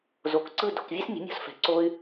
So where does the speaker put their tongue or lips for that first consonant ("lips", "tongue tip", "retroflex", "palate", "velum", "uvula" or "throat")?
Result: tongue tip